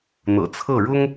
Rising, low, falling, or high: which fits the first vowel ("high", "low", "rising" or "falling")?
low